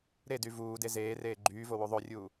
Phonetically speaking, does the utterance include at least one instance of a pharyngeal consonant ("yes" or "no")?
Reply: no